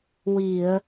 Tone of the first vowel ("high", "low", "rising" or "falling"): low